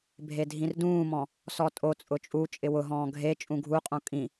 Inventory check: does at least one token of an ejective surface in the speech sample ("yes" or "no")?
yes